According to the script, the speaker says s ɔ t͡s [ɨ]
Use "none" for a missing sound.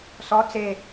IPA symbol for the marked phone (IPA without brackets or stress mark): e